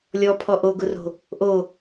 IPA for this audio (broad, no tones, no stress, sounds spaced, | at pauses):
lʲ ɔ pʰ ɔ ʔ o ɡ ʊ r o̤ | ʔ o